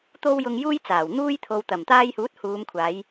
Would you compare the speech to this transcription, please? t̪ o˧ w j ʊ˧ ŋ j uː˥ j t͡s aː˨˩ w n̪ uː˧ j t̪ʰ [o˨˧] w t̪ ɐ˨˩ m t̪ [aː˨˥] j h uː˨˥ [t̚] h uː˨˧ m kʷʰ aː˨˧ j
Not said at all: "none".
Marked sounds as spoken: o˨, aː˧, t̚

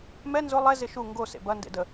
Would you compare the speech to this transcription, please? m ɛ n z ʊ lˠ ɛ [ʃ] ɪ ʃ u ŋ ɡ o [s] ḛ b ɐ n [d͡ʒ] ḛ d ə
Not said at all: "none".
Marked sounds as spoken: z, s, d

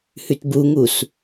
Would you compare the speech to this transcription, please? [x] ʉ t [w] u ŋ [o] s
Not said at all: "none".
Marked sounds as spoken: h, b, u

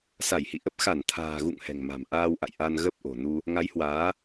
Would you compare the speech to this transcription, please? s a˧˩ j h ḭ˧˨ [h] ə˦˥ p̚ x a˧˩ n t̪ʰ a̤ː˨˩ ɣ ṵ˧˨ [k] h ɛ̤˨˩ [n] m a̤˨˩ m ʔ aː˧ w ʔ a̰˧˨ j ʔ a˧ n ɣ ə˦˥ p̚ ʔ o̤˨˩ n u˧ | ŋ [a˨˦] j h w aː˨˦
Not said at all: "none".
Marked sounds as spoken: ʔ, ŋ, ŋ, a˨˦

